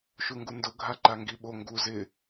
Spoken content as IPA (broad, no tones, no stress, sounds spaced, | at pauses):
ʃ u ŋ ɡ u n d ʊ ɡʱ a ǃ a ŋ ɡ i ɓ o ŋ ɡ u z ɪ